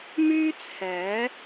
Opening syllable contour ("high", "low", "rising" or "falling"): high